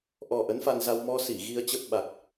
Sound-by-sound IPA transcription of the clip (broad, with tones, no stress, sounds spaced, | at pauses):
ʔ ɔ˨˩ ʔ ə˨˦ n f a˧ n z a˧ w m ɔ˧ s i˧˩ ɣ i˧ ə̯ t͡ɕ ə˦˥ p̚ ɓ a˨˩ k̚